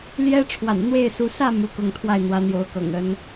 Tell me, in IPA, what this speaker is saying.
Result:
l j ɛ˥ ʈ͡ʂʰ w a̰˨˩ n n̪ w e˥˩ ɪ̯ s u˧˥ s ä˥˩ m u˥ k ʊ˥˧ ŋ t̪ʰ w a˥˩ ɪ̯ n̪ w ä˧˥ n̪ j o˧˥ ʊ̯ k ɤ̰˨˩ ŋ ə˧˥ n

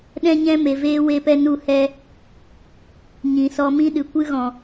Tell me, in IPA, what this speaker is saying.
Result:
ɗ ɛ̃˦ ɲ ɛ̃˦ m e˨ v eː˦ w e˧ p ɛ˧ n u˧ h ɛ˧ | ɲ ĩ˨ s ɔ˧ m ĩ˦ ɗ ɨ˨ kʷ ɨ˦ ɣ ɔ̃˨

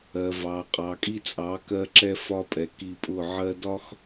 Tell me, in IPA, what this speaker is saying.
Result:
ɜ˨ v ɑ˨ qʼ ɑ˨ kʼ i˦ t͡sʼ ɑ˨˦ k ɜ˧ ǁ ɛ˧ f ɒ˧ pʼ ɛ˨ k i˧ pʼ ʊ˦˨ ʕ ɜ˧ d ɒ˦ x

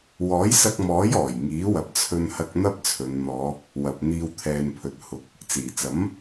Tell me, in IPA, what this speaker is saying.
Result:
w ɔː˨˥ j s ɐ˧ k̚ m ɔː˨˥ j ɔː˨˩ j ŋ iː˨˥ w ɐ˨ p̚ t͡sʰ ɵ˧ n h ɐ˧ k̚ n̪ ɐ˥ p̚ t͡sʰ ɵ˨˧ n n̪ ɔː˨˧ | w ɐ˨ p̚ n̪ iː˧ w t̪ʰ ɛː˧ n pʰ ɵ˨˥ t̚ h ʊ˨˥ k̚ | t͡s iː˨˩ t͡s ɐ˨˥ m

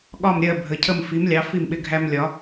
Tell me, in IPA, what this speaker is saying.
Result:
ɠ ɒ˥˨ m ɾʲ ɜ˥˨ bʱ ə˨˥ cʰ ə˥˨ m f i˨˥ m lʲ ɑ˨˥ f i˥˨ m ɓ ɪ˦ ɡʱ æ˦ m lʲ ɒ˨˥

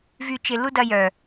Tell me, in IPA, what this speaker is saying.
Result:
v y˦˨ t͡ʃ ɪ˧ l u˦ d ɐ˧ j œ˨

